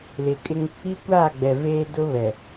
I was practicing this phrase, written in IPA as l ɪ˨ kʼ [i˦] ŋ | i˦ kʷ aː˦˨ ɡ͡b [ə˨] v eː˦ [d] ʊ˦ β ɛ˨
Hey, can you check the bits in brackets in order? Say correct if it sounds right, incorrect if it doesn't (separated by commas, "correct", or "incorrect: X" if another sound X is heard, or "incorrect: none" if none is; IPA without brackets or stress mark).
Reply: incorrect: ɪ˦, incorrect: ɛ˨, correct